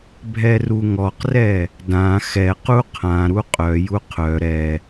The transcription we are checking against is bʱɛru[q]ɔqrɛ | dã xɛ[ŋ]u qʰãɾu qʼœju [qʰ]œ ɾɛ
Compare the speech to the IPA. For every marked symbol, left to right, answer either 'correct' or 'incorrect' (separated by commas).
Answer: incorrect, incorrect, correct